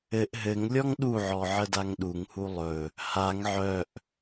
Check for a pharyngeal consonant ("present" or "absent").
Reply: present